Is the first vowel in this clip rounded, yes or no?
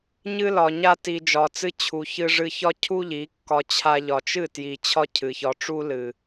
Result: no